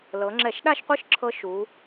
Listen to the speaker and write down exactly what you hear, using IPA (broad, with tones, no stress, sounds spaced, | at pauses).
l ɤ˩˧ ŋ͡ǁ ɛ˧˩˧ ʃ ɗ a˥˧ ʃ qʷ ɯ˦˥ ʃ ǁʰ ɤ˧ ʃ u˩˧